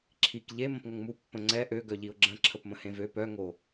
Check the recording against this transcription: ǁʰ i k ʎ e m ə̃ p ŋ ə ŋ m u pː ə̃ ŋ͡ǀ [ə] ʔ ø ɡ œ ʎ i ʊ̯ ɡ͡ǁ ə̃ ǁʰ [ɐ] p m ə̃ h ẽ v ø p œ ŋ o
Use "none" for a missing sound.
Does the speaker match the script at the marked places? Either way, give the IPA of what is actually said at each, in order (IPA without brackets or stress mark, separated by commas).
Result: ɛ, ə